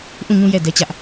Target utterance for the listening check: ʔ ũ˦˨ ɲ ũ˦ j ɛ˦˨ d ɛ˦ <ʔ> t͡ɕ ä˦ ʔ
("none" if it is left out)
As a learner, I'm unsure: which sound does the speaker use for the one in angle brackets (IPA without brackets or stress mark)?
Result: none